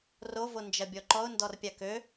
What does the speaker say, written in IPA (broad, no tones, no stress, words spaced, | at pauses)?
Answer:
rovo nd͡ʒɐbʲɔǃɔʊ̯ ndɔrpʲakø